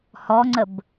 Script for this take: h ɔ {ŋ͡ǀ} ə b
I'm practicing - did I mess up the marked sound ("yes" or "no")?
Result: no